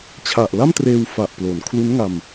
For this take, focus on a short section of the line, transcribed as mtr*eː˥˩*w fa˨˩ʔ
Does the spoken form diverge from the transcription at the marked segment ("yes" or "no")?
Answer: yes